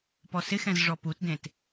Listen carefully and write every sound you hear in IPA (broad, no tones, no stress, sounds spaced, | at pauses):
p ɔ s ɪ x ɛ̃ z ʐ ɔ p u t d ẽ t